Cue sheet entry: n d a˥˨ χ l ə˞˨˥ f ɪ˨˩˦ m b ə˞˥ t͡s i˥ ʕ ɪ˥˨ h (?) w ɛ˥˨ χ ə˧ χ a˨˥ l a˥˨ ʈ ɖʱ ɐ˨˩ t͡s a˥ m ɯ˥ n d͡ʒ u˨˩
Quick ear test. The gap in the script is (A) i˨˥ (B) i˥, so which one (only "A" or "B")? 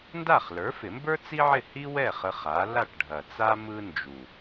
B